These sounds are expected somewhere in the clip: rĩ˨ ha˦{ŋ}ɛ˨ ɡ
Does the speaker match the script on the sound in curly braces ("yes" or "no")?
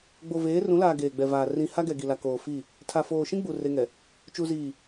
no